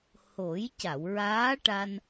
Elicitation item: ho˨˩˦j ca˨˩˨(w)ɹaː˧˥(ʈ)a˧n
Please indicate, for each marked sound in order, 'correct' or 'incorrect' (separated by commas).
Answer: correct, correct